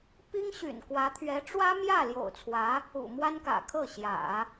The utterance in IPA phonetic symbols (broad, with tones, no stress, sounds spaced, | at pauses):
p i˥ ŋ ɕ y̰˨˩ n k w ä˧˥ t̪ʰ ɥ ɛ˧˥ ʈ͡ʂ w ä˥ m j ä˥˩ l j o̰˨˩ ʊ̯ t͡sʰ w ä˧˥ | ṵ˨˩ m w a˥ n k ä̰˨˩ kʰ ɤ˥˩ ɕ j ä̰˨˩˦